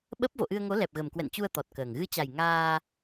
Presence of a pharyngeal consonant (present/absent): absent